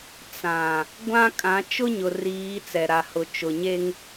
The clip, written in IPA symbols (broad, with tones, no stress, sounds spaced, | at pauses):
t͡s ã˨ | ɡʷ ã˦ kʼ ã˨˦ t͡ʃ ʊ˦ ɲ ʊ˨ r iː˨˦ t͡s ɛ˨ ɾ a˨ h ʊ˨ t͡ʃ ʊ˨ ɲ e˦ ŋ